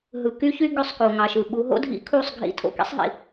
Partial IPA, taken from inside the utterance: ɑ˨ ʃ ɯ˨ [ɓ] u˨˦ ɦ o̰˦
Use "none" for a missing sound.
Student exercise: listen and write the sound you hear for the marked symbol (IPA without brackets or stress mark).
ɓ